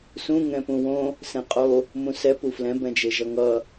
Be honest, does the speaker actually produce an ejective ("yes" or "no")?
yes